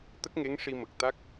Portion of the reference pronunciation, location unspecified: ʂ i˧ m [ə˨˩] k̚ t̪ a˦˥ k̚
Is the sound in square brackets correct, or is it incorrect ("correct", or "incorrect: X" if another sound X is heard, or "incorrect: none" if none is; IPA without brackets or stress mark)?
correct